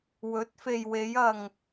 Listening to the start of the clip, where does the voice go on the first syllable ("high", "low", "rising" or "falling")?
rising